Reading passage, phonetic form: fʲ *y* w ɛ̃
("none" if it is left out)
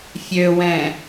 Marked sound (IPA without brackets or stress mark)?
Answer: ø